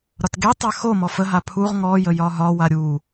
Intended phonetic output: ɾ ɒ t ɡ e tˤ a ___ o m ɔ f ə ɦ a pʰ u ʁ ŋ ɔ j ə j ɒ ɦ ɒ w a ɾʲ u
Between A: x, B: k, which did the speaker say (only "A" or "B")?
A